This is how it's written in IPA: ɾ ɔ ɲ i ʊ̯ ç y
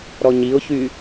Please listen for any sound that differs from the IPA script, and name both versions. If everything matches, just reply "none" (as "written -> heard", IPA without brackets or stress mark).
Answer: none